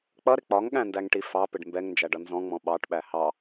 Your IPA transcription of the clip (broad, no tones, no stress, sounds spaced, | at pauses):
k͡p ʌ ɾ ɪ k͡p ɒ ŋ ɠ æ̃ n d æ ŋ ʈ i f ɑ p ɪ ɖ m b ɛ ŋ n d͡ʒ æ ɖ ʌ n z ɔ̃ ŋ͡m ɔ̃ ɓ ɑ ʈ ɓ æ h ɑ